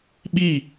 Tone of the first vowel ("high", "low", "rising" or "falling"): falling